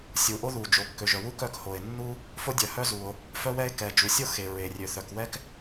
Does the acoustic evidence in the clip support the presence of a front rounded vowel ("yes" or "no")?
yes